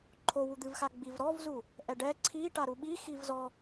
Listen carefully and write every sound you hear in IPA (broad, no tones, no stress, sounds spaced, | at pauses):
ǃʰ o w u d̪ ɨ v x a ɡ͡b i v ɾ ɔ v z u | ʔ ɛ ɖ ɛ ǀʰ i ʈ a ɾ u ɓ i x i v z ɔ